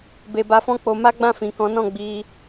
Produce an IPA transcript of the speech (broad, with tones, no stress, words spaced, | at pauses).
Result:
be˧ba˧fɔ̃˦ k͡po˧ma˦ ɡ͡bã˦˨fĩ˨kɔ̃˨˦nɔ̃˦˨ ɡ͡bi˧